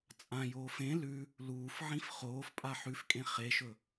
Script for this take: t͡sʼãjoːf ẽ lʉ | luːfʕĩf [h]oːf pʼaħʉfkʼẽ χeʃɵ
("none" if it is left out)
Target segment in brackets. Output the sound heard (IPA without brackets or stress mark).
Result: χ